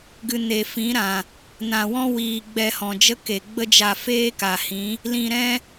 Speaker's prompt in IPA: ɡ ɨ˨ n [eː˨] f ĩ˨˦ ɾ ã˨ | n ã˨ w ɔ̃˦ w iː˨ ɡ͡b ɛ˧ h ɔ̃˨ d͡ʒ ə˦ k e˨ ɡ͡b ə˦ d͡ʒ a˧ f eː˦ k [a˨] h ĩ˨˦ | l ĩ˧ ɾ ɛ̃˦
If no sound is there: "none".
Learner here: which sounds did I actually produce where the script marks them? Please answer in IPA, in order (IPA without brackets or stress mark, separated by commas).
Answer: e˨, a˨